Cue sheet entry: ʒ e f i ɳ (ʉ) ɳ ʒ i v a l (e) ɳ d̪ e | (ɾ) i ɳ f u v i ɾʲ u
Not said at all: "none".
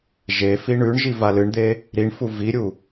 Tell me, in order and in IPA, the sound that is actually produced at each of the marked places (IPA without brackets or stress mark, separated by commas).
ʉ, ɨ, ɾ